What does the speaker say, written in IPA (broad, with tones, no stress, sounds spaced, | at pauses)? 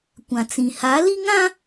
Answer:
kʷ ã˨ t͡s ĩ˨ h a˨˦ l i˦ ŋ ã˦